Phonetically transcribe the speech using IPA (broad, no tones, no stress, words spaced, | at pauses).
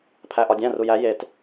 pʰæʔɒdʲæ̃ rujæ jet